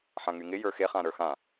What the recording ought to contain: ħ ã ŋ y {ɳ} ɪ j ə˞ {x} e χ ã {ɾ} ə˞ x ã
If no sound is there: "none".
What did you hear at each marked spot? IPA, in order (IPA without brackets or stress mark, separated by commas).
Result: ŋ, x, ɾ